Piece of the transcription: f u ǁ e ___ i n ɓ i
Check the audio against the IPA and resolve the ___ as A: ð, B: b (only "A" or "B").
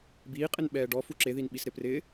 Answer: A